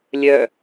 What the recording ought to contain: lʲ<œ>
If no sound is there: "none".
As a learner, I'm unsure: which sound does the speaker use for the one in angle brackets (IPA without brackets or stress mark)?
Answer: œ